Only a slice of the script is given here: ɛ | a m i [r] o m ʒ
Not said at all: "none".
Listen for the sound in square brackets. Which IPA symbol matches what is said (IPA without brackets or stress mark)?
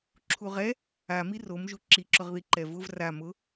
r